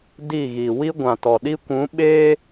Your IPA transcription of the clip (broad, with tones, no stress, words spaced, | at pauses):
di˦˨ɣi˨ wi˦ ɡʷã˨tɔ˨ɗi˦ kʷũ˨˦ ɓeː˦